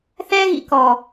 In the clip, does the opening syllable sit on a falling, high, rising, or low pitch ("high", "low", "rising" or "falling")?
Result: high